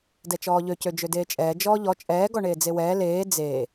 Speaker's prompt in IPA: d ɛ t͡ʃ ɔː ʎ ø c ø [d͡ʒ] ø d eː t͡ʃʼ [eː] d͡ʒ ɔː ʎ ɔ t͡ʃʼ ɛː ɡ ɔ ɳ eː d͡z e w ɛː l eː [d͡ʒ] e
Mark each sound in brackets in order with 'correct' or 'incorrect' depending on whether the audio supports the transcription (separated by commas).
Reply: correct, incorrect, incorrect